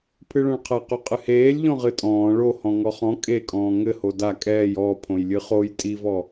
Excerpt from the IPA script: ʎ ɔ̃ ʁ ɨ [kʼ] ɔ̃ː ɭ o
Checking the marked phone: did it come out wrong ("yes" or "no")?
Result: yes